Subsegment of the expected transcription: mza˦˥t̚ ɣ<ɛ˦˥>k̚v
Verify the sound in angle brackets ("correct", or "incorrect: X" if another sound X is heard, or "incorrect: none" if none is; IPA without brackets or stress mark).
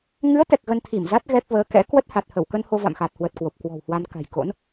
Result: correct